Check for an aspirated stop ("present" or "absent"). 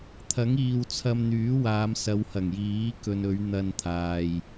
present